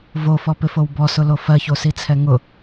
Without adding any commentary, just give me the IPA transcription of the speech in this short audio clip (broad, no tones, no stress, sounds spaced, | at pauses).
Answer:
v o f ɔ p ɪ f o w b ɔ s ʊ l o f ɜ ç o s i t͡sʰ ɛ ŋ ʊ